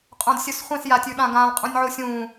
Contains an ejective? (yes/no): yes